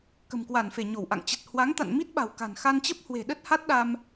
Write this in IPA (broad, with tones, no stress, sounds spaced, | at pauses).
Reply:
k ə̤˨˩ m k w a˧˩ n f e˧˩ ɲ o˧˩ w ʔ a̰˧˨ ŋ t͡ɕ ə˨˩ t̚ h w a˨˦ ŋ t̪ a̰˧˨ n m i˦˥ t̚ ɓ a̤˨˩ w k a̤˨˩ n x a˧ n t͡ɕ ə˦˥ p̚ h w e̤˨˩ ɗ ə˦˥ t̚ h a˦˥ t̚ ɗ a˧ m